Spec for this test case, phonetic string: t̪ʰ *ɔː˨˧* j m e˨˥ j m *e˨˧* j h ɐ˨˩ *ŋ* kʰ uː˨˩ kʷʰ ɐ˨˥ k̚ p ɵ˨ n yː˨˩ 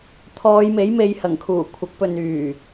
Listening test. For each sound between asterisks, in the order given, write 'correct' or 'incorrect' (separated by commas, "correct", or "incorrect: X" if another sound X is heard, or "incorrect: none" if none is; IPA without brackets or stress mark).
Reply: correct, correct, correct